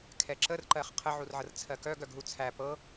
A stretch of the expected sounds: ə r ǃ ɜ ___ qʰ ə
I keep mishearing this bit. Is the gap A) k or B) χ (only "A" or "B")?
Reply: B